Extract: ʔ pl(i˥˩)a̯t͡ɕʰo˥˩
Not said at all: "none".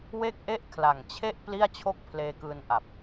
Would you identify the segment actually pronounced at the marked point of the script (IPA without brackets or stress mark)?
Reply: i˥˩